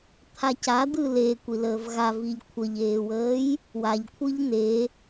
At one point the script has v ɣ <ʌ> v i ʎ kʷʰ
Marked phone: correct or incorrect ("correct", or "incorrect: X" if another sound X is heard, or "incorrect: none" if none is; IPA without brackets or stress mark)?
incorrect: a